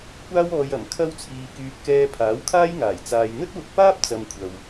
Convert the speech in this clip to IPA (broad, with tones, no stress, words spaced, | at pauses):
kʷaː˥wɔː˧j ɐ˨˩m kʰɐ˥wt͡sʰiː˧kyː˧p̚ kɛː˧ pʰaː˨˥wkʰaː˥jŋaː˨˩j t͡saː˨jn̪ɵ˥t̚wʊ˧k̚paː˥p̚ t͡sɐ˧m kʷʰɐ˨w